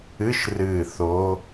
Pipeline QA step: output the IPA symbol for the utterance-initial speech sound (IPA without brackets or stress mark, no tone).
ɨ